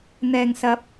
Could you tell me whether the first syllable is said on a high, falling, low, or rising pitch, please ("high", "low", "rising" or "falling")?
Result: low